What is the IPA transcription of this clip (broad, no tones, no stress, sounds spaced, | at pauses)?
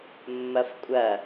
mː ɐ f kʷʼ ɐ